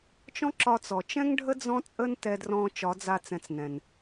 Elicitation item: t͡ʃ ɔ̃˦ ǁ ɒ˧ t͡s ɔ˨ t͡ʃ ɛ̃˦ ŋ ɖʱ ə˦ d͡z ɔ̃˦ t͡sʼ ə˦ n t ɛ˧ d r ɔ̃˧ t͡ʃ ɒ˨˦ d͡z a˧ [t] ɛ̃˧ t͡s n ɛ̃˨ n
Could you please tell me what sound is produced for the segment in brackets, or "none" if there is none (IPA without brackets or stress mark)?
t͡s